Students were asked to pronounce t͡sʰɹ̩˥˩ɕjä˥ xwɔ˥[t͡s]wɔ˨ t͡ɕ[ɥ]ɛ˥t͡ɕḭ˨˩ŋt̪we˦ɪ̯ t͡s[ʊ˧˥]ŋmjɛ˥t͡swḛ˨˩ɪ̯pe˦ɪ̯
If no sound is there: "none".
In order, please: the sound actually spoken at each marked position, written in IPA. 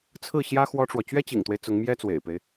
ʈ͡ʂ, ɥ, ʊ˧˥

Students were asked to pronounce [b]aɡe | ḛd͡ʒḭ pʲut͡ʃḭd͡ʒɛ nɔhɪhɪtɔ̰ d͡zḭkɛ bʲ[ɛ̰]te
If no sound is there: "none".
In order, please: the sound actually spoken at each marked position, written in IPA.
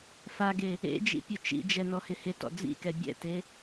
f, ɛ̰

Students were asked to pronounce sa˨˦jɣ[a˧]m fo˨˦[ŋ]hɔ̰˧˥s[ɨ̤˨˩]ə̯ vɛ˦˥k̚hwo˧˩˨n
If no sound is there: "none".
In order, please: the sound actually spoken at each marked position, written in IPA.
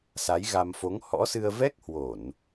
a˧, ŋ, ɨ˧

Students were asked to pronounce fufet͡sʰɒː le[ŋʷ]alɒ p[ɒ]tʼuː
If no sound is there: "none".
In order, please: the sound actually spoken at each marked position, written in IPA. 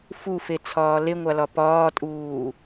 ŋʷ, ɒː

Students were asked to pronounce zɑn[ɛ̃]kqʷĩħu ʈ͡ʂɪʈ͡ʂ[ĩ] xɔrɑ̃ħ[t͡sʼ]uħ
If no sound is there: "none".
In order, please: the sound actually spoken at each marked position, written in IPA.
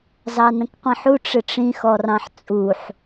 ə̃, ĩ, t͡sʼ

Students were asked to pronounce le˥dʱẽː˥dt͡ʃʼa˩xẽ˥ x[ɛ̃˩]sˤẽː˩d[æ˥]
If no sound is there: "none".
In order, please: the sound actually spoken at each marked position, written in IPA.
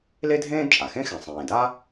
ɛ̃˩, a˥

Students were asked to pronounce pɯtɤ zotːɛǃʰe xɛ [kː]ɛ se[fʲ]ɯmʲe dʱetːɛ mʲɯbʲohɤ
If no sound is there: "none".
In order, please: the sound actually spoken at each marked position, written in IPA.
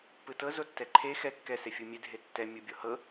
kː, fʲ

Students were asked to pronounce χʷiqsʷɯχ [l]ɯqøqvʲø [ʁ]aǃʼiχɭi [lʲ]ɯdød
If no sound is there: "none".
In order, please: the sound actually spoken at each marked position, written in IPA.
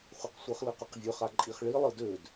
l, χ, lˠ

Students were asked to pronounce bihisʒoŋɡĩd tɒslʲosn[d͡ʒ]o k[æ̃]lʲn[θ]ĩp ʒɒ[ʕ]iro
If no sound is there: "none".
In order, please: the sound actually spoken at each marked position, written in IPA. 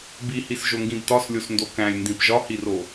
d, æ̃, d, h

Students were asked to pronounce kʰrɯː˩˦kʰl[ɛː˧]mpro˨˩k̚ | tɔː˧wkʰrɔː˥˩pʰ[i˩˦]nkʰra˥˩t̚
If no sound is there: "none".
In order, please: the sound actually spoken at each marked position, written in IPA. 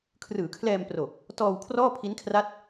ɛː˧, i˦˥

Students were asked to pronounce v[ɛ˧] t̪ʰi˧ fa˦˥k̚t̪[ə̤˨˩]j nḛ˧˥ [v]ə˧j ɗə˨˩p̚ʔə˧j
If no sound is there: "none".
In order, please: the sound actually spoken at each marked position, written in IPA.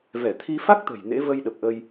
ɛ˧˩, ə̤˨˩, v

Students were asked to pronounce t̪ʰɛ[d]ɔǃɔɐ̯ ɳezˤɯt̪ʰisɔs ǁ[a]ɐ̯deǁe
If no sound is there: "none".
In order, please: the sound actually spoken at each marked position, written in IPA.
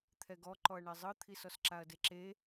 ɡ, a

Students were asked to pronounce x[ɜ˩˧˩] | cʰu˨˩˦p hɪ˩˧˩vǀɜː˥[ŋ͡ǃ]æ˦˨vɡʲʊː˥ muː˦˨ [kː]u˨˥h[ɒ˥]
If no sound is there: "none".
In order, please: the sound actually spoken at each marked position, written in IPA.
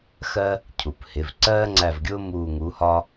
ɜ˥, ŋ͡ǀ, ŋ, ɒ˥

